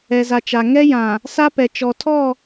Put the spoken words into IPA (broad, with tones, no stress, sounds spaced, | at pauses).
ɛ˨ z a˨ t͡ʃ a˨ ŋ ɛ˦ j ã˨ | s a˦ p ɛ˨ t͡ʃ ɔ˨ tʰ ɔ˦˨